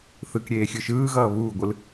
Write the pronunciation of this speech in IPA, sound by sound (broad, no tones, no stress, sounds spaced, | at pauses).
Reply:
θ ɯ k ɾʲ eː xʲ ɯ ʃ ɯː ɣ ʌː β uː ɡʷ ɯ l